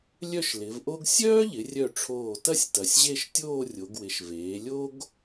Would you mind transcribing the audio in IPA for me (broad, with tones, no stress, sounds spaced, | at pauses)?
lʲ œ˥˧ ʃ l ɪ˩˧ v ʔ o˥ ɡ sʲ œː˥ ʎ ɪ˩˧ rʲ œ˧˩ ʈ͡ʂʰ oː˧˩ t ɐ˥˧ sʲ t ɐ˩˧ sʲ ʑ e˥˧ ʃ tʲ oː˥˧ rʲ o˩˧ ɡ w ɪ˩˧ ʃ v eː˩˧ lʲ o˥ ɡ